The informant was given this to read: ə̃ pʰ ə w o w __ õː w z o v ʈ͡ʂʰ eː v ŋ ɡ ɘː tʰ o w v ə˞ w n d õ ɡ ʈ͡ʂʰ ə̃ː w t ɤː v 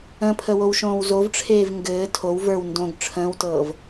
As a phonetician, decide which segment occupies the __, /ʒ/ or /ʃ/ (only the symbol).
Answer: ʃ